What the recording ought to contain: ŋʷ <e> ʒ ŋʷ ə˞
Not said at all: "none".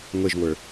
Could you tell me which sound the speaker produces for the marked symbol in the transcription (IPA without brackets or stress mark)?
e